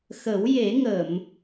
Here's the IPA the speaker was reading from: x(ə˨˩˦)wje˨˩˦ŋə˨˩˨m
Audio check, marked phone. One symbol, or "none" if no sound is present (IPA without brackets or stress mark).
ə˨˩˦